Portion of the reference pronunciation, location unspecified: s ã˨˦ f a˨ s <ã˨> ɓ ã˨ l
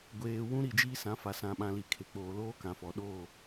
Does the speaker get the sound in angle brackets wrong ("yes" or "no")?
no